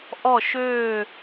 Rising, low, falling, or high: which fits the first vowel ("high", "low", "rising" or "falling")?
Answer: falling